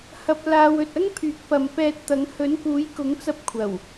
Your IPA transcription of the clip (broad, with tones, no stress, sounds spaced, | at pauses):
h ɐ˧ p̚ l aː˧ w ɵ˨ t̚ ɐ˥ ŋ pʰ yː˨˥ k̚ p ɐ˨ m p ɛː˧ t̚ t̪ ɐ˨˥ ŋ h ɵ˨˥ n k uː˨˥ j k ʊ˨˥ ŋ t͡s ɐ˧ p̚ kʷʰ ɐ˨˩ w